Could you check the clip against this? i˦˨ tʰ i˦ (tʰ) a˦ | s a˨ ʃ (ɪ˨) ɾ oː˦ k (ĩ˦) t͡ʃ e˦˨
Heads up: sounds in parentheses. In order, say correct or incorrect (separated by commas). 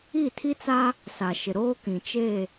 incorrect, correct, incorrect